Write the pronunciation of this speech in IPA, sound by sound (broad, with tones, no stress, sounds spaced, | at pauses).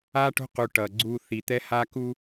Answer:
a˦ ʈ o̤˦ q u˨ ʈ ʌ˨ ɡ͡ǀ u˨ θ i˨ t̪ ɛ˦ h a˦ k u˦